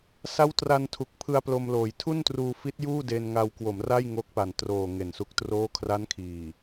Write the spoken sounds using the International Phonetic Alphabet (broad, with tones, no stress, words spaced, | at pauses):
sa˦˥wtra˧ntʰu˨˩k̚pʰɯ˧a̯ plo˧mloː˨˩j tʰu˥˩ntruː˧ fi˦˥t̚juː˥˩ de˧nŋa˧wkwo˩˦mra˥˩j ŋo˦˥k̚pa˨˩n troː˨˩ ŋe˨˩nsu˦˥k̚troː˥˩ kʰra˦˥nkʰiː˨˩